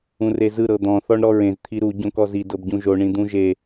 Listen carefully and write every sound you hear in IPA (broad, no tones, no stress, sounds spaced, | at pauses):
ũ r e z ɯ ɾ ɤ d̪ ɔ̃ θ ɔ ɳ ɾ ɔ ɹ ẽ z t̪ʰ i ɾ u ɟ õ k ɔ z i d ɤ b ɟ ũ ʒ o ɳ ĩ d̪ ũ ʒ e